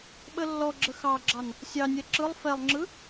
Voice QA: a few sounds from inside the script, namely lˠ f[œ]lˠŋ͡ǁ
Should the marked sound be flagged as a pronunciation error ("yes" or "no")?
yes